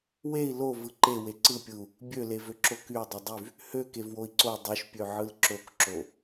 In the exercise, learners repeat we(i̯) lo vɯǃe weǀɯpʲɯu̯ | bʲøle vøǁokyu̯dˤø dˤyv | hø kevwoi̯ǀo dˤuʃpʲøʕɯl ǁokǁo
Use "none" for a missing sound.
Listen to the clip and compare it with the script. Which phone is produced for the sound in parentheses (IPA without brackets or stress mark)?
i̯